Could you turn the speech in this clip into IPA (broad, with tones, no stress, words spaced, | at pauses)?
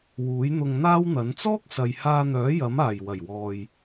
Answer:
wuː˨˥jn̪ʊ˧ŋn̪aː˥wn̪ɐ˨˥n t͡sɔː˥k̚sɐ˨jhaː˧n̪œː˨˥ jɐ˨˥maː˨˩j wɐ˨˩jwɔː˨j